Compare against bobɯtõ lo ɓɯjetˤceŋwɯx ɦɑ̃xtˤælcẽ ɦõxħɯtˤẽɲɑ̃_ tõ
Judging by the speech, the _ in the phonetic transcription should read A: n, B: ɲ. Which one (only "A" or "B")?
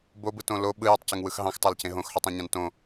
A